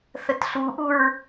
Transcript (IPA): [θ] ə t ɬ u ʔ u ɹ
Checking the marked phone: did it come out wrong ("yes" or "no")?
no